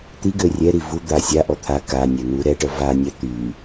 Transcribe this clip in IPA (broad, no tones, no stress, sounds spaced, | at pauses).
t̪ i ɡ ø rʲ ɛ ɾ i v u d̪ a sʲ a ʔ ɔ t̪ʰ a k a nʲ ɛ n̪ u ɾ ɛ ʈ œ v a nʲ a t̪ y